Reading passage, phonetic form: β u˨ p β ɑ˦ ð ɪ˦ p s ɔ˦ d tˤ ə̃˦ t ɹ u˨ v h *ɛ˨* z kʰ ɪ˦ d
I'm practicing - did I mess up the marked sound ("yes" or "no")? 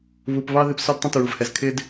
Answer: no